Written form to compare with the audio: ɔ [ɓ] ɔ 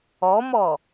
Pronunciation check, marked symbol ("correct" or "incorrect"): incorrect